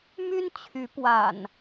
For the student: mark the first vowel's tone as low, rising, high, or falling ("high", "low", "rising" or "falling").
high